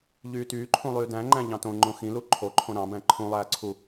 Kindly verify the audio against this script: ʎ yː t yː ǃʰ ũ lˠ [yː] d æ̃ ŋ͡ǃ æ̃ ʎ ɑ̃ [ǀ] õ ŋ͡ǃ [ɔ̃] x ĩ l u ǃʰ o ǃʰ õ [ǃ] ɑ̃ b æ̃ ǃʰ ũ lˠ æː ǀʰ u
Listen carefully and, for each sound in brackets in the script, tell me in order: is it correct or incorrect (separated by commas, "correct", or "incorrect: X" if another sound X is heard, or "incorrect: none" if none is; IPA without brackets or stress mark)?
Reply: correct, incorrect: t, incorrect: õ, incorrect: ɾ